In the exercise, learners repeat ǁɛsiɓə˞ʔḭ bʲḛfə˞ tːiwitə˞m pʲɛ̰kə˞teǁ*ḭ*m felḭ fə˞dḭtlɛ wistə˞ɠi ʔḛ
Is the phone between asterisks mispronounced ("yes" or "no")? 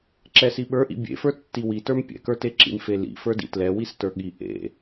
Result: no